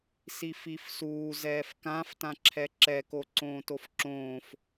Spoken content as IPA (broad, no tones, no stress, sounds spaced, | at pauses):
s i f i f s uː z ɛː f k ã f t ã ǁʰ ɛ ǁ ɛ k o ǀ õː t o f ǁ õː f